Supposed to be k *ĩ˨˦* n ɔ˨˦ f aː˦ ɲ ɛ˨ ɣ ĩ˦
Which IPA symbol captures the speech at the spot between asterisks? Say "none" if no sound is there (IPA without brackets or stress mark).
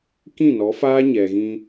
ĩ˦˨